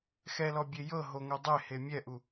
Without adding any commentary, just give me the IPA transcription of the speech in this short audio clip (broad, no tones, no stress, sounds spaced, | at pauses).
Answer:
x ɛ l ɔ bʲ e j ɤ ɦ o ŋ o dˤ e h e mʲ ɛ ʔ u